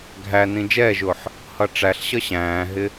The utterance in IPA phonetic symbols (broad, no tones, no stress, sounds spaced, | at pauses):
ɡʱ æ n ĩ d͡ʒ ɛː ʒ ʊː ħ | h ʌ ʈ͡ʂ æ ɬ ɕ ʌ ɕ æ̃ː ɦ ɪ